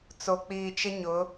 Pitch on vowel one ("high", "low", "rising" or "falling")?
low